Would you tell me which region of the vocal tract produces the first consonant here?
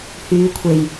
throat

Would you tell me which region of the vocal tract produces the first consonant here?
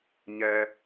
palate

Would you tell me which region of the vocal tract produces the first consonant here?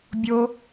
lips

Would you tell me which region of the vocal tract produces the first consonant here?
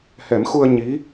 throat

